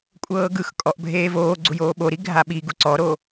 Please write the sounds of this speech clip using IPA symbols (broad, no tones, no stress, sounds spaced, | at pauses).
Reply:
kʷʼ ɤː ɡ ɯ x kʼ ɔ ʔ bʱ eː v oː ɡ͡ǀ u j oː ɓ o ɾ i ɡʱ a ɓ i ɡ u ǀ ɔ ɾ o